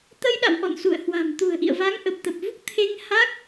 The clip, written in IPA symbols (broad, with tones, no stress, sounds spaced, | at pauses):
t̪ ə˧ j ɗ a̰˧˨ w ʔ ɔ̰˧˨ n s ṵ˧˨ ə̯ h w a̤˨˩ m t̪ ṳ˨˩ ə̯ ʔ ḭ˧˨ ə̯ v a˨˦ ŋ ʔ ə˨˩ p̚ t̪ ə˨˩ p̚ v u˦˥ k̚ t̪ʰ e˧ ŋ h a˦˥ k̚